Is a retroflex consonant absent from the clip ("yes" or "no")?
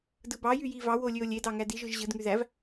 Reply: yes